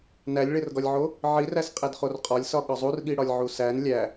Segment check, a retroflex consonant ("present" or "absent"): present